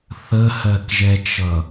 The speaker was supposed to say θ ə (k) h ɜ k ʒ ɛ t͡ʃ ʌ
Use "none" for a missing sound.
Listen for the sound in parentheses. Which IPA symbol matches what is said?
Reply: none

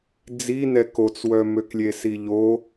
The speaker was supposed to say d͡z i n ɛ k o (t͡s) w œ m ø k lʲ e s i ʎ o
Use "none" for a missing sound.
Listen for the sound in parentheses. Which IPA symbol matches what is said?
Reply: t͡s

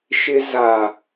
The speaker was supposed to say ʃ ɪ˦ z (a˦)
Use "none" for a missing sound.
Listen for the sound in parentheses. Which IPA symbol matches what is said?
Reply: a˨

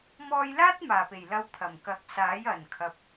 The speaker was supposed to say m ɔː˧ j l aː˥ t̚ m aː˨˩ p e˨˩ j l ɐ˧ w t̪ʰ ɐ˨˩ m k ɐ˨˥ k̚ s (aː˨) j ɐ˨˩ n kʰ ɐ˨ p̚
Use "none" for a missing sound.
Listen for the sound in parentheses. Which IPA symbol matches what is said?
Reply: aː˨˥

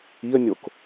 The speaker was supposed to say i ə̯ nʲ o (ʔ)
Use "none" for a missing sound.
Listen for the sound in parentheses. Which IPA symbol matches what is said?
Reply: k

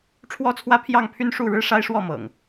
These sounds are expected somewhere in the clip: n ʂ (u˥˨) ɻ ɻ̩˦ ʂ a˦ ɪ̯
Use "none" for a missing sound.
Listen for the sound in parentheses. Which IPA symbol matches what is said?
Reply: u˥˨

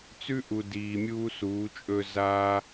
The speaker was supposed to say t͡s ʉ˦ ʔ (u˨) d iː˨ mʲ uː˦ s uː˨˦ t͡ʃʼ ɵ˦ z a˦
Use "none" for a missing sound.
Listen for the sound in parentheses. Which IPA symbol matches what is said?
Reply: u˨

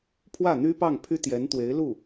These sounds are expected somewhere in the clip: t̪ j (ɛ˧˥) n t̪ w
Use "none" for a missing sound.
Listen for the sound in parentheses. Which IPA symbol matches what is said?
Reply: ɛ˧˥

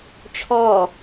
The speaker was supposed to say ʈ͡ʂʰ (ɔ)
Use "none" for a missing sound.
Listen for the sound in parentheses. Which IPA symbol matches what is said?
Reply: ɔ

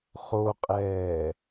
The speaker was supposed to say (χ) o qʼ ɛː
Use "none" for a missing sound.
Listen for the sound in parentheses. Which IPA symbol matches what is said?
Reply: χ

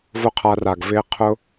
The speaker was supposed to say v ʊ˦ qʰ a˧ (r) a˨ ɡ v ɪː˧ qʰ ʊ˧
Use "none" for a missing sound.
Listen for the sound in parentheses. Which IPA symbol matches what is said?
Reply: r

